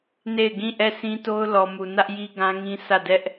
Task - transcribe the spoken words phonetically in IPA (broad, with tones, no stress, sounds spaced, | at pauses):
n e˦˨ ɪ̯ ɡ ĩ˦˨ ʔ ɛ˦˨ s ĩ˦ t o˦ ʊ̯ l ɔ˨ m u˨ n ä˦ ʔ j i˦ ɡ ã˦ ŋ ĩ˦ sʰ ä˦˨ d ɛ˦ ʔ